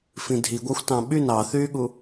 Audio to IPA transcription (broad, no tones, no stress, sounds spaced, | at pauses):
f ĩ dʱ i ɡʷ ɑ xʷ t ɑ̃ ɓ y n ɑ θ yː ɠ u